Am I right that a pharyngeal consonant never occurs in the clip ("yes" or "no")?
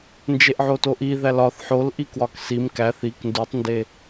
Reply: no